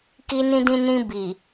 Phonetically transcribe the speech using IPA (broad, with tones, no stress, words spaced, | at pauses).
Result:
ki˧nĩ˧dĩ˧nĩ˧ bi˨